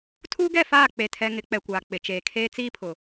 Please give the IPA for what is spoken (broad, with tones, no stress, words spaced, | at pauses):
tʰuː˦ɡɛ˦˨ faː˦˨k͡pe˨tʰɛ˨ ŋɪ˨˦k͡pɛ˨kʷaː˨ k͡pɪ˨t͡ʃeː˨kʰeː˦ t͡siː˦pʰʊ˨